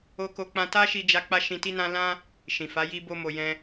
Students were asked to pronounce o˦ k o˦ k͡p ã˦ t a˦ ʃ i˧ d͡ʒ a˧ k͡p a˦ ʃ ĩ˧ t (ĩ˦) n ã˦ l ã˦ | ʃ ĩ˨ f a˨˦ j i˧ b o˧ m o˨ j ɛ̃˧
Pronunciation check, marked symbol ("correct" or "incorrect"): incorrect